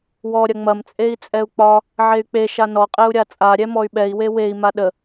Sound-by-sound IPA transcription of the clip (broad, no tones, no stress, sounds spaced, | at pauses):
w ɔ ɾʲ ɐ ŋ͡m ɐ m t͡sʼ e i̯ t͡sʼ ɛ u̯ k͡p ɒ | ʕ e y̯ k͡p e ʃ a n ɔ qʼ ɛ u̯ ɾʲ a t͡sʼ a ɾʲ ɛ m ɔ y̯ ɓ ɛ i̯ w e w e i̯ m a ɗ ə